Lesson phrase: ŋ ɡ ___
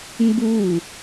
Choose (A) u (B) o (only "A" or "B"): A